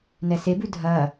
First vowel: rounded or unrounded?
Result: unrounded